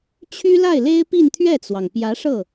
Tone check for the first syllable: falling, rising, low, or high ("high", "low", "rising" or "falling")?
high